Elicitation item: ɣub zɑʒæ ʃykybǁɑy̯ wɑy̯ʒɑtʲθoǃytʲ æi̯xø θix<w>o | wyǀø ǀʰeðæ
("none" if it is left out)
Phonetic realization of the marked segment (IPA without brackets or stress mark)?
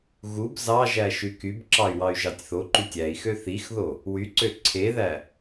ð